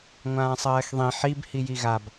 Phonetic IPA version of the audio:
ŋʷãːsˤɜːxðˤĩ ħib hijiɣab

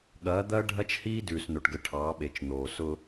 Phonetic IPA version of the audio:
ɠɐː˨˦d̪ɐː˦ ɖʱɐ˦t͡ʃhiː˦ dʉː˨sno˨ʈɡə˨ ʈʰɑː˨˦ɓe˨t͡ʃn̪oː˨ sʊ˦

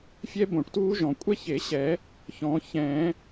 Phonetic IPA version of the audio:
fʲɛ˥bõ˨˩˦ʈtuː˥ʒɔ̃˨˩˦ kʷʼɛ˥çe˨˩˦ɕɛ˨˩˦ | çɔ̃˨˩˦ çɛ̃˨˩˦

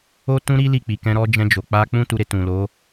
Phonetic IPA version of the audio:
o˦tũ˦ɾi˦ li˦˨k͡pi˨kɛ̃˧ ɾɔ˧d͡ʒɛ̃˧d͡ʒo˨ k͡pa˧k͡pũ˦ tu˧ɾe˧ tũ˨lo˨˦

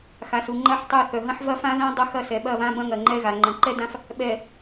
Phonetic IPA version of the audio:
xa˨su˨ ŋ͡ǃɐ˦ħtˤɛ˦˨ θœ˨ɦɐ̃˦ħ vɐ˦fã˦ðã˦ dˤɐ˦xɐ˦˨ sɛ˨ɓɐ˦˨βã˦ bɐ̃˦ŋɐ˨ŋ͡ǃɛ˦ɣa˨ ŋ͡ǃɐ̃˨ǃɛ˦dã˦f | ɓɛ˨

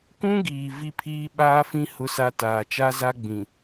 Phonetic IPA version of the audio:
kũ˦ɡiː˨ vi˦pʰiː˦ ɓaː˦fĩ˦ hʊ˦sa˦ taː˨t͡ʃa˦za˦ ɡ͡bĩ˨

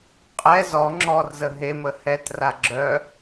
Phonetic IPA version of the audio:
qʼɛ zɔ ŋ͡ǁɔrzə ɦemə hɛtra ɡ͡ǁœ

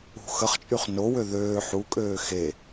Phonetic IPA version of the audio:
ṳ xəχt͡ʃʼyχ nowø ðøː ħukʼøː xe

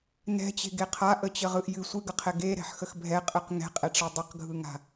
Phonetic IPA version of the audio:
nɛ̤t͡ɕe̤ɡe qʰaʔət͡ɕəʁɯʔ jɨ sʷɨɡəqʰɛ ɡeɾɛ̤ħxəx bʱɛqʼɯq ŋɛ̤qʼɛʈ͡ʂɛ dˤəqɡʱɯŋa̤

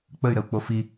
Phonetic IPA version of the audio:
k͡pəy̯ɾəu̯k͡po fi

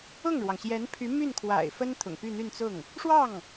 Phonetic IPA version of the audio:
ʊ˥˩ŋɻwɑ˩ŋɕjɛ˧˥npʰy˧˥ my˥˩nkʰwa̰˨˩ɪ̯fə˥n t̪ʰʊ̰˨˩ŋpy˥˧n̪y˥˧nt͡sʊ˥˩ŋ | ʂwɑ˥˩ŋ

